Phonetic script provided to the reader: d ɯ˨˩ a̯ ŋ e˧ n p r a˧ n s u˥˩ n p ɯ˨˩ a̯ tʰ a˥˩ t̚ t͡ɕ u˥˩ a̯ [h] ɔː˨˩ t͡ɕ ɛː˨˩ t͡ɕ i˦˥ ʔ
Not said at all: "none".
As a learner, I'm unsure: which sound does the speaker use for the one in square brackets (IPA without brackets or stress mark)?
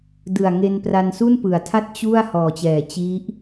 h